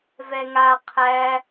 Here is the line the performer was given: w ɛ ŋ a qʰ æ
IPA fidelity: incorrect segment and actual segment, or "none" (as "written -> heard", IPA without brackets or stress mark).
w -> v